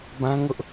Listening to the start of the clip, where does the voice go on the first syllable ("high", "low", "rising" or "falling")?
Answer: high